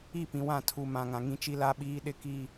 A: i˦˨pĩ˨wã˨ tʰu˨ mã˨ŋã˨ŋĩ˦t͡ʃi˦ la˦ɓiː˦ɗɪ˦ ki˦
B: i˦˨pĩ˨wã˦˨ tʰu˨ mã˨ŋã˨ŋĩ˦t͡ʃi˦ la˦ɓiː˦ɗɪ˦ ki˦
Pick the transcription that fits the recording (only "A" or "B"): B